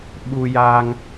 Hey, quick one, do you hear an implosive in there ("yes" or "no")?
yes